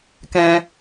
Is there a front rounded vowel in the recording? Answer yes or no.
no